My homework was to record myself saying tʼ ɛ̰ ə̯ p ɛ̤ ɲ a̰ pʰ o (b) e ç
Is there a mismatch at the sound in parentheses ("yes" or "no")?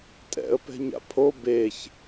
no